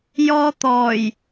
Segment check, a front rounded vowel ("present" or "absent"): absent